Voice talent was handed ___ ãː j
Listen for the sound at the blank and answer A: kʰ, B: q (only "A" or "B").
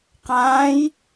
B